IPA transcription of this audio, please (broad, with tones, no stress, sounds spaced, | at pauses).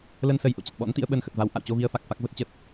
l ə˧ n s ə˨˩ j ʔ o̰˧˨ t͡ɕ ə˨˩ t̚ ɓ ɔ̰˧˥ n t̪ ḭ˧˥ ə̯ ɓ ə˧ n x ə˨˩ t̚ v a˨˦ w ʔ a̰˧˨ w t͡ɕ o˧ v i˧ ə̯ f a˨˩ k̚ f a˦˥ k̚ v ə˦˥ t̚ t͡ɕ ə˦˥ t̚